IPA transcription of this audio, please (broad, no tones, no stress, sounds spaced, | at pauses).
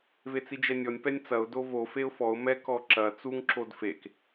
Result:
v e t͡s i d͡ʒ ɛ nʲ ɔ nʲ p ɛ nʲ t͡s ɐ ʊ̯ d o v o f e ʊ̯ f ɔ ʊ̯ m ɛ k ɔ ǁ ɐ t͡s u ŋ ǁ o d f e k